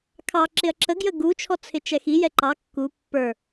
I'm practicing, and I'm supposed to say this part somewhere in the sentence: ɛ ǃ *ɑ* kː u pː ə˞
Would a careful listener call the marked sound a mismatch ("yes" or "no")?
no